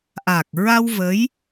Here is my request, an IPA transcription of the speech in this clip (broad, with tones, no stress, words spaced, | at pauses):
ʔaː˨˩k̚ɹa˧w və˧˥j